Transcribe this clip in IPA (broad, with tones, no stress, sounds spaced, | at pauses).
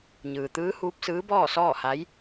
ɲ ɯː˩ t̪ ɯː˧˥ h uː˧˥ p̚ s ɯː˧˥ b ɔː˥˨ s ɔː˥˨ h a˧˥ j